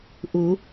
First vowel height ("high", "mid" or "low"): high